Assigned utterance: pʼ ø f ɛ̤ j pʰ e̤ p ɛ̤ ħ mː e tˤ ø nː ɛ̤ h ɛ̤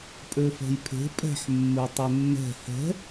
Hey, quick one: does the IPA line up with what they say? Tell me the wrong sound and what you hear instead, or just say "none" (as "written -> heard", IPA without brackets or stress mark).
p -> pʼ